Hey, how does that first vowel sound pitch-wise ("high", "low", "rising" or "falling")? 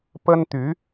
high